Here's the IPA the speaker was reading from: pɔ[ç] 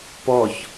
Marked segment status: correct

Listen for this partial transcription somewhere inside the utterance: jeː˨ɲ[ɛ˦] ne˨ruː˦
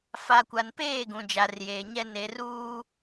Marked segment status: correct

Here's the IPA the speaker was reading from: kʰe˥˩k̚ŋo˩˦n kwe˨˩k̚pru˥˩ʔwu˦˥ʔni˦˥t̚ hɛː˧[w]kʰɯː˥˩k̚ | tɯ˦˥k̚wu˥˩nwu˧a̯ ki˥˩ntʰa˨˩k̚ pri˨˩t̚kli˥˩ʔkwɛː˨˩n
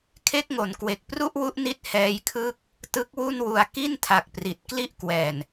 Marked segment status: incorrect: j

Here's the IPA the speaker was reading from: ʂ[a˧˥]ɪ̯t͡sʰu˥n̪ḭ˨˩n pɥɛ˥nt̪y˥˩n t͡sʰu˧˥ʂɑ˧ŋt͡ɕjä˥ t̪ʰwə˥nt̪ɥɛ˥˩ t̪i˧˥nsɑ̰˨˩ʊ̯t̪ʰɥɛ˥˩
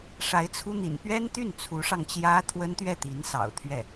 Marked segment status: correct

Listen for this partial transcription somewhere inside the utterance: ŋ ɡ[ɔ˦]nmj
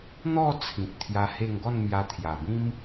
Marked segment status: incorrect: ɔ˥˧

